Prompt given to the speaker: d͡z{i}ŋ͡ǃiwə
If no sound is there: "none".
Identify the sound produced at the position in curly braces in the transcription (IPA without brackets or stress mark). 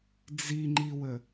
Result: i